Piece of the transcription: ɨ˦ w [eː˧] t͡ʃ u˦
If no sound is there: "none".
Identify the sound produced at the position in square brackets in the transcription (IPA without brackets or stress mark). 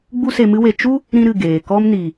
e˧